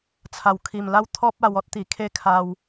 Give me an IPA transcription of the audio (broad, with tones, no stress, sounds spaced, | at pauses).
t͡sʰ a˨˩ w kʰ i˨˩ m l a˦ w t̪ʰ ɔ˦ p̚ a˧ w ɔ˦ t̚ t̪ i˨˩ kʰ e˦ kʰ a˧ w